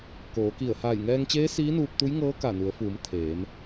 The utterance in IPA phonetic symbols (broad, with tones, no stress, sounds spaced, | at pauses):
k oː˩˧ k i˧˩ ə̯ h aː˧˩ j ŋ ɛː˧ ŋ t͡ɕ eː˧˥ s iː˧˥ n uː˧ p̚ t̪ u˧˥ j ŋ ɤː˧˥ k a˧˩ n u˩˧ ə̯ f uː˩˧ m t̪ʰ eː˩˧ m